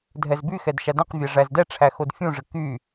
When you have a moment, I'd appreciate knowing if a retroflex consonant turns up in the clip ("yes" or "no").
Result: yes